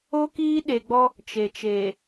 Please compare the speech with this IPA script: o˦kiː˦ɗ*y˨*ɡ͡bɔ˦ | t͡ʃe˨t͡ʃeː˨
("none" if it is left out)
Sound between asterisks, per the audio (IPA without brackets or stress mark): e˨